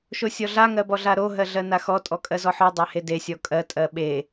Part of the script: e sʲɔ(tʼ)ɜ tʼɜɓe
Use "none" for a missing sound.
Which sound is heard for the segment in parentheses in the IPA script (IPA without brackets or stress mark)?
kʼ